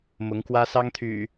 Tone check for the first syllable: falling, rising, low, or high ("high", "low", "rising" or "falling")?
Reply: rising